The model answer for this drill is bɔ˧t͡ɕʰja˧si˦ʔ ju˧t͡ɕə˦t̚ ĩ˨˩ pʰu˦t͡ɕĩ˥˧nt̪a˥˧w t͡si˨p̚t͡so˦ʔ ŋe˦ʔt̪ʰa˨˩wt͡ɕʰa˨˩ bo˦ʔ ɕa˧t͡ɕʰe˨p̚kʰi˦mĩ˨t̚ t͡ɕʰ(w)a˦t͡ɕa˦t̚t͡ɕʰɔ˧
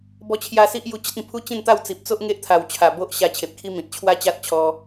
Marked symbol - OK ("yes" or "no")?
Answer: yes